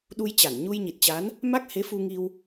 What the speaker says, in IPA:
ɗ u˧ j t͡ɕ a˧˩ n ɲ u˧ j ɲ i˨˩ t̚ t͡ɕ a˨˦ n | m a˦˥ k̚ h e˨˦ f u˧ ŋ i˧ w

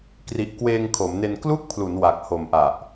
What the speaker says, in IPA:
k r i˨˩ ʔ k w eː˧ ŋ kʰ o˩˦ m n e˧ n k l u˥˩ k̚ pʰ l u˩˦ n w a˨˩ k̚ h o˨˩ m ʔ a˨˩ ʔ

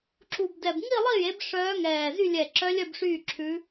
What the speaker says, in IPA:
ǁ u˧˩ b d ɛ˧˩ b ŋ i˥˨ lˠ i˥˨ j e˩˥ b ʂ œː˧˥ ŋ ɛː˧˩ z y˥˨ lʲ ɛ˧˩ ǁ œ˧˥ lʲ œ˥˨ b ʂ yː˥˨ ǁʰ ʉ˧˥

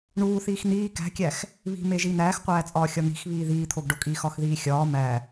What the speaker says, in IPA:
ɳ uː θ iː x n̪ iː k æ̤ kʲ æ x | β i̤ m e ʒ i n̪ æː x qʷ æː t͡sʼ ɒː xʲ ɒ n̪ i̤ x β iː ð iː t̪ʰ o ɡ ɖ o kʼ iː x ɒ x ð iː xʲ ɒː m æ

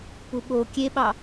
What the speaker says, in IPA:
p u ɓ o kʲ e ɓ ɑ

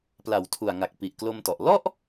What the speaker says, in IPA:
p l a˩˦ w tʰ u˨˩ a̯ ŋ a˨˩ k̚ p i˨˩ ʔ k l o˧ m t ɔ˨˩ ʔ l ɔ˥˩ ʔ

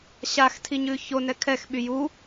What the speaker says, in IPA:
ɕ a x tʰ i ɲ ʉ ç o n ɛ kʰ ɛ x ɓ y j u

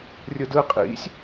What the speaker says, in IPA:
rʲ ɯ d ɯ qʼ ḭ sʲ

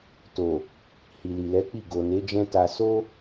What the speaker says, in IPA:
t o˨ | h i˨ l i˨ l ɛ˨˦ k͡p i˦˨ ɡ o˨ n e˨˦ d͡ʒ ɛ̃˦ t a˧ s o˦

